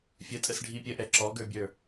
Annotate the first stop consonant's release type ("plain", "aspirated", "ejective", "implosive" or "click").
ejective